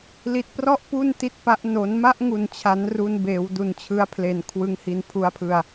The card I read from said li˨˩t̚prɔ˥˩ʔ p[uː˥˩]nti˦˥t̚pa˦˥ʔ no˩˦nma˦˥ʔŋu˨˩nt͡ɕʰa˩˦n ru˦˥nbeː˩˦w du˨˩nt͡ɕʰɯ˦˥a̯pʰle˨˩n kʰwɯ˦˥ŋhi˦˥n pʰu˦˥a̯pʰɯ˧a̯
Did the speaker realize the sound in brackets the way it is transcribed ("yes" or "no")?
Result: no